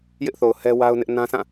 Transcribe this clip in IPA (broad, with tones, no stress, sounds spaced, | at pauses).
j ɪ˦ ʔ θ o˨ ʊ̯ h ɛ˦ w a˦ ʊ̯ n ɪ˦ ʔ n ã˦ s ã˦˨